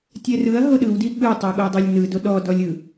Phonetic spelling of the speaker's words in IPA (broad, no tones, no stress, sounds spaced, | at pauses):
tʲ ɛ r ɯ ɐ̯ ɦ o ɗ ɯ w d i ɠ ɯ tˤ ɤ ɠ o dˤ o lʲ n ɯ d o ɗ ɔ d ɔ lʲ ɯ